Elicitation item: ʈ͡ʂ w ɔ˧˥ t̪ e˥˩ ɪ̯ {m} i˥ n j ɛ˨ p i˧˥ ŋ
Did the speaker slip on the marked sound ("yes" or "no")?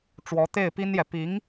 yes